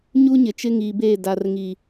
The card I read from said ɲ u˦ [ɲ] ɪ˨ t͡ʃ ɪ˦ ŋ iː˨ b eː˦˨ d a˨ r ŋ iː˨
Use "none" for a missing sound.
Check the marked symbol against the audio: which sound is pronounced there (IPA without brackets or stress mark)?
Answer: ɲ